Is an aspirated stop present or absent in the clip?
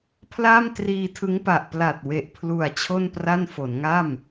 present